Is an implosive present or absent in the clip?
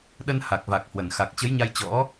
present